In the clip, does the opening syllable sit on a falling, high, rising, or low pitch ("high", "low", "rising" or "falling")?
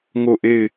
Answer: falling